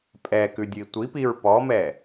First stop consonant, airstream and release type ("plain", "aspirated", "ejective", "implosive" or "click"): ejective